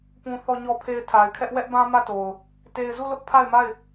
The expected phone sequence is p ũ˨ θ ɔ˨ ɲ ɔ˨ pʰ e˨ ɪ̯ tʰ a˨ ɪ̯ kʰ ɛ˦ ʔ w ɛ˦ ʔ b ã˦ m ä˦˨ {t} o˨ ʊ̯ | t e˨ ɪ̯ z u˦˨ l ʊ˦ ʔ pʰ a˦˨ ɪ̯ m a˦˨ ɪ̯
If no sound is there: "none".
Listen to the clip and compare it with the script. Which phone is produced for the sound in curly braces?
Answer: t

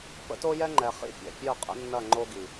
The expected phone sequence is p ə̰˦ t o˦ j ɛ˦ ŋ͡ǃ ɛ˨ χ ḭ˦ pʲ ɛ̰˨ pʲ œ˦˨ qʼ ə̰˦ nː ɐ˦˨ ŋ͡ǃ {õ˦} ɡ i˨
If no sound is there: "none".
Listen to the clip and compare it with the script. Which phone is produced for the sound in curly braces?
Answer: o˦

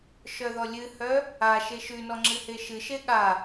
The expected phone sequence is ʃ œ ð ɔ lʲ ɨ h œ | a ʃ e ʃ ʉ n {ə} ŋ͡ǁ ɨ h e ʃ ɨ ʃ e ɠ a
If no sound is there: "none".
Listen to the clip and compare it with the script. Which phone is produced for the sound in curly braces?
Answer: ɔ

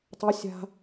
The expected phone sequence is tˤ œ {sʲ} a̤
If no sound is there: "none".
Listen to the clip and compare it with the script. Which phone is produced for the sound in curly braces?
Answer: sʲ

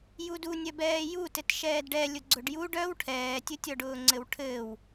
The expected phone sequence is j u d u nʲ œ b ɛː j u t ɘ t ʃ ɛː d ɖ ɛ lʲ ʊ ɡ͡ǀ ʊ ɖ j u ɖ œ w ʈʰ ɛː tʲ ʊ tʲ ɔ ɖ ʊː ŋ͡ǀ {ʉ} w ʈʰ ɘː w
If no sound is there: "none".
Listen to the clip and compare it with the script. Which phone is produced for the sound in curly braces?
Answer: ɘ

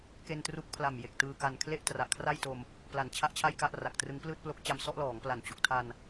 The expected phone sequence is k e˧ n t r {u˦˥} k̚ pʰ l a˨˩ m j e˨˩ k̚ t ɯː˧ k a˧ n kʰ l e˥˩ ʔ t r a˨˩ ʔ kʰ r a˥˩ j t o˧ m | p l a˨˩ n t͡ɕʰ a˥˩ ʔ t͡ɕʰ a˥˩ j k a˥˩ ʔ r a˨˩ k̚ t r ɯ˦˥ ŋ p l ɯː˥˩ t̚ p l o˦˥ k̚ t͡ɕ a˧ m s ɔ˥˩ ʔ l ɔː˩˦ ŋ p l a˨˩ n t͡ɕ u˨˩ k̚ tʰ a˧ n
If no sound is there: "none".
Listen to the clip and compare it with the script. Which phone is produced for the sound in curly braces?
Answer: u˦˥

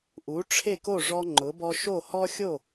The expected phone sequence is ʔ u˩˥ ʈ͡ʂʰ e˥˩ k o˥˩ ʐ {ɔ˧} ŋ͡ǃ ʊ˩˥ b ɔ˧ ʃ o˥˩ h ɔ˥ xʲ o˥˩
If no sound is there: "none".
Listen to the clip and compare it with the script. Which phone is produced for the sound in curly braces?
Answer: ɔ˧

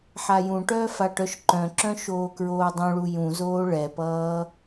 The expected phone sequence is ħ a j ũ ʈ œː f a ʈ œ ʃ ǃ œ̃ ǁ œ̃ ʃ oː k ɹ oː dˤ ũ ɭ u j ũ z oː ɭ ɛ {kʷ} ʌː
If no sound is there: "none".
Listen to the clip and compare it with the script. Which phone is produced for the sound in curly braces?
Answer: p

